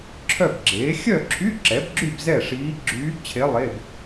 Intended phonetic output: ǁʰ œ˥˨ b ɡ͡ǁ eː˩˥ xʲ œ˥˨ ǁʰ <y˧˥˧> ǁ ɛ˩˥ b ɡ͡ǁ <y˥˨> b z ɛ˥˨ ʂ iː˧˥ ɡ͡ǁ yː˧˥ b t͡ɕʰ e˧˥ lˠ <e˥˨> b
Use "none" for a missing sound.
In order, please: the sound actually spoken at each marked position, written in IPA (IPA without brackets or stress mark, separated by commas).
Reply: y˧˥˧, y˥˨, e˧˥˧